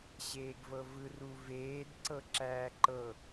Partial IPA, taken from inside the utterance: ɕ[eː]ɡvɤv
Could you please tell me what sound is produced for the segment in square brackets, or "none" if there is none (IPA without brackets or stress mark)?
eː